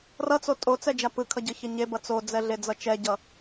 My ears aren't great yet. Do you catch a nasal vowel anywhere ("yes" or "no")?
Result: no